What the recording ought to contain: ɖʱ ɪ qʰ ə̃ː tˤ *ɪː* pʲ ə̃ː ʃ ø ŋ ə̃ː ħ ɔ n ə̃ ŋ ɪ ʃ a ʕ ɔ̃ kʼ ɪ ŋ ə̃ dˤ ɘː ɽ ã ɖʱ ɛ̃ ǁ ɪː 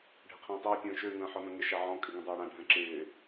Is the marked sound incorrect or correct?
correct